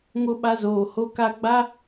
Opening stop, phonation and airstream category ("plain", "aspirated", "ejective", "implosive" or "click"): implosive